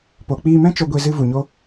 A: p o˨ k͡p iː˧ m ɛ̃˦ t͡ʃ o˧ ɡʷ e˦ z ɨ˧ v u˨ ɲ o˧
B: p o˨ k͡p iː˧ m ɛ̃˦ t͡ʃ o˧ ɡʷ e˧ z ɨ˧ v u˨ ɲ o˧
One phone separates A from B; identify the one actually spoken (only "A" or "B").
B